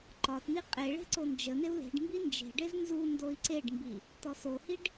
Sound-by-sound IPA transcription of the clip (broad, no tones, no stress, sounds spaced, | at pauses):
ǃ ɒ t n̪ i qʼ e ɭ e̤ ǀ o n d͡ʒ ə n̪ e u̯ l e̤ ɖ m b i n d͡ʒ e̤ ɖ e z n z u n d o i̯ ǀ e ɖ m b i | t̪ ɔ s o h i ɖ